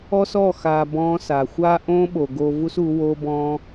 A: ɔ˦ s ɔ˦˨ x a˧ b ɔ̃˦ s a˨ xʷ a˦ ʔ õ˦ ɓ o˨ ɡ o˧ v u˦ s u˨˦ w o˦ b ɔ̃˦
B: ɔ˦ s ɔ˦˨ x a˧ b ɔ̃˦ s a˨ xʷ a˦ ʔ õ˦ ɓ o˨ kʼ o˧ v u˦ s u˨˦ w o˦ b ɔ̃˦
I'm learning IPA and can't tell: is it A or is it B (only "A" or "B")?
A